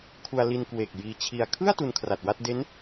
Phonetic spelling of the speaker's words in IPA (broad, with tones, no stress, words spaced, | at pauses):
kʰu˧a̯li˧nkwe˨˩k̚ jiː˧t͡ɕʰi˧a̯ kʰɯ˥˩a̯ tu˧nkʰra˨˩t̚wa˥˩t̚ de˦˥n